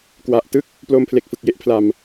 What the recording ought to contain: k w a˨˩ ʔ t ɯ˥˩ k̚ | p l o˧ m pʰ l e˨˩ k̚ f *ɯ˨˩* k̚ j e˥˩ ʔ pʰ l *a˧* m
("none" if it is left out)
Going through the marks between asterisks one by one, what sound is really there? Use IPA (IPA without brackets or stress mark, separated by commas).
ɯ˨˩, a˧